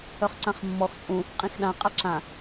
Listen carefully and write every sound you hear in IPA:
œχǀãχmːɔx t͡sʼũ | qʼĩxɗã qʼaǁã

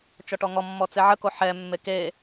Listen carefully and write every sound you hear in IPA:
t͡ʃɔʈɔŋɔmːɔ t͡seʕəko ħɛmːe ke

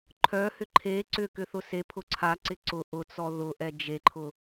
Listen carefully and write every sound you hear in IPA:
ǃʰœhʏ ǃʰe ǀʏ kʏθʊsepʰʊ ǀʰaǀɪ ǀʊ ʔʊt͡sɔ ðʊʔɛ d͡ʒeǃʰʊ

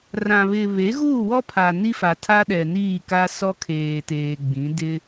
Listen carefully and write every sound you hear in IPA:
rã˨βɪ˨ βe˨˦ɣuː˦˨wɔ˦pʰa˨ ni˦fa˨tʰa˦ ɗɛ˨niː˦˨ka˦ sɔ˦kʰeː˨teː˨ ɡ͡bĩ˨˦ dɪ˦

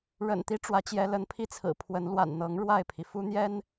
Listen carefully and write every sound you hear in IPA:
ɻə̰˨˩nt̪i˦ ʈ͡ʂwä˨˦t͡ɕjɛ˨˦lə˨˦npʰi˥˨ t͡sʰɹ̩˨˩pʰwə˨˦n lwa̰˨˩nn̪ɤ˨˦ŋ ɻwa˥˨ɪ̯pʰi˩ fu˦n̪jɛ˦n

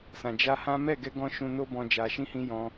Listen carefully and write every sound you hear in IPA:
sã˨ d͡ʒa˧ hã˦ mɛ˦˨ɡɛ˧ɡɔ̃˧ ʃũ˧no˦bɔ̃˧ d͡ʒa˨ʃĩ˧hĩ˧ jɔ̃˧

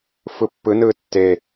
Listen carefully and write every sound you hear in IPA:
fɯpːɯnɯː tːe

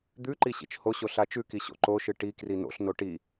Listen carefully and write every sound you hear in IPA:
d̪ʉǃi ɕḭt͡ʃhoɕo ɬat͡ʃʉki ɕo̰ǃoʃɨ ʈikri no̰ɬno ʈi

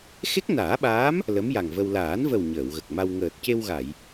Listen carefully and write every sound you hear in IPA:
xe˦˥k̚naː˨˩˦ɓaː˧˥m | lə˧˥mja˨˩ŋvə˧w laː˨˩˦nvə˨˩w ɲəː˨˩˨wɣə˨˩k̚ma˧w ŋəː˨˩t̚ce˧wɣa˨˩˨j

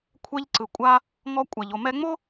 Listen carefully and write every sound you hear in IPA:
kʷʰɛ˧ʎǀɯ˨ kʷʼa˧ | ŋɔ˧kʷʼa˨ʎ o˨mɛ˧ŋ͡mo˦

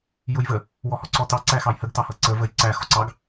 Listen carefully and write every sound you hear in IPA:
jʊjvə | wɔhɔǀɔtɑ ǀæxɑjhəɡ tɑhʌǀə vəjǀæ xɔǀɑɡ

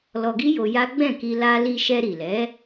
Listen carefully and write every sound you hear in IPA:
lɔ˧ɡi˦jo˧ ja˦ ɡ͡bɛ̃˦˨ki˧ la˦ li˧ʃɛ˧ɾi˨lɛ˨˦

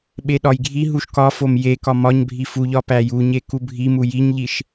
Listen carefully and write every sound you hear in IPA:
ɓeɗɒjɡʱi ɦuʃkɒfom je kɒmɒɲbʱi fuʎɒ pæjuɲe kubʱi mujiɲʎiʃ

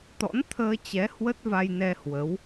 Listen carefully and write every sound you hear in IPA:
t̪ɔ̰˧˥n t̪ʰəː˧t͡ɕɛ˨˦ hwə˦˥t̚va˧jnɛ˧ hwə˨˦w

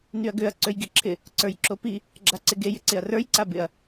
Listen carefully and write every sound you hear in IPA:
nyɐ̯ɡøɐ̯ ǀøjɡiǁʰɪ | ǀə˞jǁopi | ɡ͡ǁaǀɪɡe jɪǀɪɐ̯rə˞j ǀabɪɐ̯

